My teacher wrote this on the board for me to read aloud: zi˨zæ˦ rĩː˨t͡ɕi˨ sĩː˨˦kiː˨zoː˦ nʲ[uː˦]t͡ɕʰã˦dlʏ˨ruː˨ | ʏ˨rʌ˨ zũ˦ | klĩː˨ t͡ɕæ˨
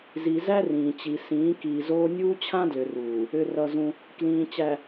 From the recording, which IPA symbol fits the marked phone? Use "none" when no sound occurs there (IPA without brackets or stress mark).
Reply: uː˦